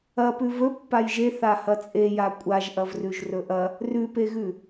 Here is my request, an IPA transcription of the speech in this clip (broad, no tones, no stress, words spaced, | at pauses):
ɐpʉ vɵ pːajʒe θahɐt͡sʼe jakʷʼaʒʔɐvrʉʒ rɵʔɐ | rʉpeɣʉ